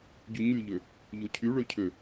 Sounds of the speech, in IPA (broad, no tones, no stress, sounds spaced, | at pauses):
ɟ y ɲ y ʎ ø | ʎ o cʰ y ɭ ø cʰ ø